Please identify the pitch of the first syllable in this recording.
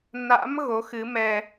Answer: rising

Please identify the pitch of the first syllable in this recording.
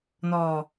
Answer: low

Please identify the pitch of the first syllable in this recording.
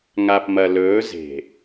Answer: low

